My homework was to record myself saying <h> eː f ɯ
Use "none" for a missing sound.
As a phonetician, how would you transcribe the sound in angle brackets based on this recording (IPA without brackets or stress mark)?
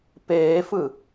p